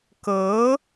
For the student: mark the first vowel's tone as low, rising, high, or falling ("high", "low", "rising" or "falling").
rising